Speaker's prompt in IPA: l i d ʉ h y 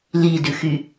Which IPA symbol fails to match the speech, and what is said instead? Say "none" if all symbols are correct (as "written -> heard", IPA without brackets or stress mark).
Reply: h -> x